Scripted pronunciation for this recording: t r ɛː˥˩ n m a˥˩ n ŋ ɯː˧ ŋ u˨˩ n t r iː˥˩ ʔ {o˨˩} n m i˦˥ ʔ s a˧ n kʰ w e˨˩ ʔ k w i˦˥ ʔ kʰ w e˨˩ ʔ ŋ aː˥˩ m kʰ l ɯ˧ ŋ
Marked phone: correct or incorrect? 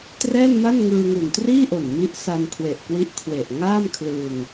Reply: correct